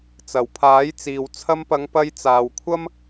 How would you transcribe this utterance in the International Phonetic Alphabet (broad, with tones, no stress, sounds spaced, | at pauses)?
t͡s ɐ˨˩ w pʰ aː˨˥ j t͡s iː˨ w t͡sʰ ɐ˧ m p ɐ˨˧ ŋ p ɐ˧ j t͡s aː˨ w kʷʰ ɐ˥ m